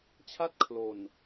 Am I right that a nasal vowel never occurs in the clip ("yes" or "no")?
yes